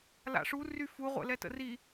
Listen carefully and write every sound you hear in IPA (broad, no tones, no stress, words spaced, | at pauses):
la̰ʂu ryfu ʁʷɛ̰lɛtə̰ri